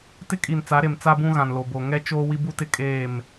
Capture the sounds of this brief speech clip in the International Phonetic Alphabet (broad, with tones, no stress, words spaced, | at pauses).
tɪ˦kʼi˨nt͡sa˨˦ɾe˨m t͡sa˦bũ˦ɣã˨n lo˨bo˨ ŋɛ˦t͡ʃoː˦ wi˦bu˦tɪ˦ kʼeː˦˨m